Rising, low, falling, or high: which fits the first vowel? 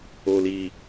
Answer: low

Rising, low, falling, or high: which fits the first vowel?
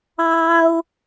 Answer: high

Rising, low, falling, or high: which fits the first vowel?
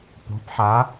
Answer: rising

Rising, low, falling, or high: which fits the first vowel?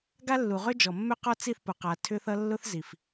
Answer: high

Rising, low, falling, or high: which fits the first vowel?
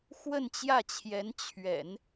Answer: falling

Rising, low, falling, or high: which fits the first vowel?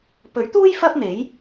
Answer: rising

